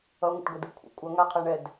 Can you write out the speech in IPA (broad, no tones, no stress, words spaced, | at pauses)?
ʌŋʷə̰ʈ ɡʷədɯkʷʰə̰ kʷʼʌŋaqʰɛɳɛd